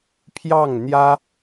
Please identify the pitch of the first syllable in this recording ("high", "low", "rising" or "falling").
falling